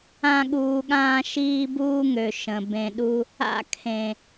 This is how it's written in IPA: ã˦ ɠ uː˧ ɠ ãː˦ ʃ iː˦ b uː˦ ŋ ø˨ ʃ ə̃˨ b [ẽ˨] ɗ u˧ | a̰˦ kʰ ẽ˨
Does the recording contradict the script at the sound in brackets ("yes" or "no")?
no